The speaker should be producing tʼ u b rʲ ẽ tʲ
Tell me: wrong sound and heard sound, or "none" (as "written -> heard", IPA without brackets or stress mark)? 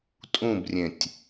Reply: u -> ũ